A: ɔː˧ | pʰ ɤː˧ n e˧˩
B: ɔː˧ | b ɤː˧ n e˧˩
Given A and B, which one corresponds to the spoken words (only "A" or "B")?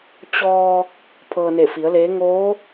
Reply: A